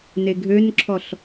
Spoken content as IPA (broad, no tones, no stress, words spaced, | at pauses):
neɡʱønǁʰɔɬ